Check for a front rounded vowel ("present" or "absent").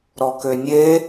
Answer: present